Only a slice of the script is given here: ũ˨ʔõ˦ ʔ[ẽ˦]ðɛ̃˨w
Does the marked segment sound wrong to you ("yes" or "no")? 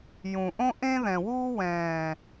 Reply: no